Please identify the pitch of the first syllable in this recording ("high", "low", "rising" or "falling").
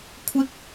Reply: high